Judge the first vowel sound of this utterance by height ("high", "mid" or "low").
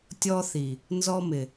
mid